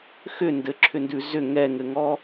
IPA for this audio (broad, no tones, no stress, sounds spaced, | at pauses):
x ʏ n d ɘ ǁʰ ʏ n d ʉ z ʏ ŋ ɛ ŋ ɘ ŋ ɔ